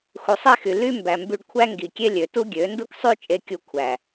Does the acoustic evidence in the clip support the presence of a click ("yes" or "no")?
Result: no